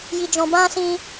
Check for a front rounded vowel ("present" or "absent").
absent